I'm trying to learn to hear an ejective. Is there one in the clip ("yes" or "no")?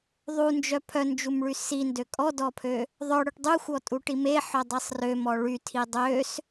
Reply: yes